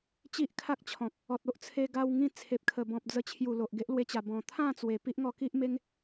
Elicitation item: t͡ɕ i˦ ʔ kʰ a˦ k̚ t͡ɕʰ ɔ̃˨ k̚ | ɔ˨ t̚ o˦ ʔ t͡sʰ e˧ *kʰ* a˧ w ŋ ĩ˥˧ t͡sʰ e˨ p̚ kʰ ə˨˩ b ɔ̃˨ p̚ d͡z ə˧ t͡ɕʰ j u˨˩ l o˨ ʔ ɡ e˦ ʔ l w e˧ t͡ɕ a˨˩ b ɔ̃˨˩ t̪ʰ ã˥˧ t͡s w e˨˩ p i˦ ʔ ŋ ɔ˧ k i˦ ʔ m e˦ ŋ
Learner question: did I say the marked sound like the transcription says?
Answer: no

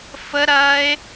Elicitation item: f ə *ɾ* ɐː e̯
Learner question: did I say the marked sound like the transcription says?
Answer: yes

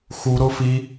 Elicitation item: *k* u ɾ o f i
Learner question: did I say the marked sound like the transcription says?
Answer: no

